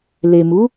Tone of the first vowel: low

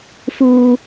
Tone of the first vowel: high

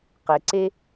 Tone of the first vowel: low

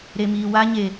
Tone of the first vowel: low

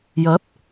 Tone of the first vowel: rising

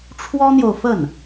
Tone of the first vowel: high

